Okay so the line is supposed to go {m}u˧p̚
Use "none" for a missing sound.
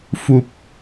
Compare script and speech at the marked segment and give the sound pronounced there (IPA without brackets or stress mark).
f